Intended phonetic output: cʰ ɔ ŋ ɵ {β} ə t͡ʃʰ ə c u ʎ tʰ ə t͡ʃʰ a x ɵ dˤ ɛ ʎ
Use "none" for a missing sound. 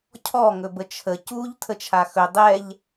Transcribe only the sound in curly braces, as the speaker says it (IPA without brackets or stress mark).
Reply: b